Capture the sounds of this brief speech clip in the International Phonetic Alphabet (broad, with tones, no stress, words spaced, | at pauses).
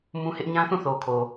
mũ˦hɪ˦ʔ ɲã˦θũ˦˨θo˨kʰo˨